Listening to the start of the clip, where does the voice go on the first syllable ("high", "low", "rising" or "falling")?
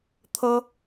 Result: high